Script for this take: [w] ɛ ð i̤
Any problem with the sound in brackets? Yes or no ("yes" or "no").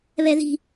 yes